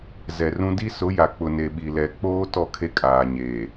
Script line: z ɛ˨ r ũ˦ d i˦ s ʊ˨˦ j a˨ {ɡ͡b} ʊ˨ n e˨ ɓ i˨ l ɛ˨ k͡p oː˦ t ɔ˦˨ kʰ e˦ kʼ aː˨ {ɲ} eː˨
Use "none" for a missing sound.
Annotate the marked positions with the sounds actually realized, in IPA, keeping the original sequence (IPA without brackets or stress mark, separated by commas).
k͡p, ɲ